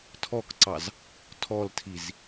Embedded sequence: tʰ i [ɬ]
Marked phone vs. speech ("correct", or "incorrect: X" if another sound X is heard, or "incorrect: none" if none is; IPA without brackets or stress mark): incorrect: z